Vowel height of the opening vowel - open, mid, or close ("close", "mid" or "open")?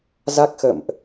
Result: open